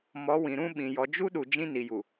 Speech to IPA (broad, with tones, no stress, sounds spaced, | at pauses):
m ɔ˨˦ w ĩ˨ ɾ ũ˦ ɓ ĩ˨ j ɔ˨ d͡ʒ u˦ ɗ u˨ d͡ʒ ĩ˦ n i˨ j u˨